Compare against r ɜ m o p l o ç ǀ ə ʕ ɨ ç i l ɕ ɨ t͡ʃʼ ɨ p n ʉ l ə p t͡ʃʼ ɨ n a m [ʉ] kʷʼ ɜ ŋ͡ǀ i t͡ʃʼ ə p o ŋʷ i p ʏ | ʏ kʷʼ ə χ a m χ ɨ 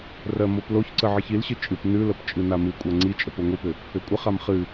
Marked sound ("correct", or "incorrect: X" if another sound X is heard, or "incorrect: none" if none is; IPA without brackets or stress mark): incorrect: ɨ